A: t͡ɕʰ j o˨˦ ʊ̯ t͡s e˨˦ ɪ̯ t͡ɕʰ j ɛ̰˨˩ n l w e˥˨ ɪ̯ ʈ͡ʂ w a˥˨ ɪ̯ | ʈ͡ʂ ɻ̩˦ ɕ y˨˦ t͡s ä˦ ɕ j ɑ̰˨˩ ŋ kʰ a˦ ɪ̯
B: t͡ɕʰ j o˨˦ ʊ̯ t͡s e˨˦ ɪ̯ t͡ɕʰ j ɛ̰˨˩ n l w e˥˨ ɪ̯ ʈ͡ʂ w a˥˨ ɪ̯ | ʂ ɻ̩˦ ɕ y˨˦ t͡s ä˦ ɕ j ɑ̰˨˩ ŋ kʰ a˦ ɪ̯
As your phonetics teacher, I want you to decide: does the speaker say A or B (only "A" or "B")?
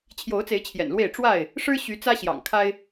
B